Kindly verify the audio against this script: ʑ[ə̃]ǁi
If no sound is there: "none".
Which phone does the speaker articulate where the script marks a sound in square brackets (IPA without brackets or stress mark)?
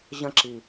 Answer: ə̃